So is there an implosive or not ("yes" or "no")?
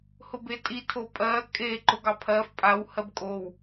no